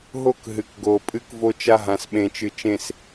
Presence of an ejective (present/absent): present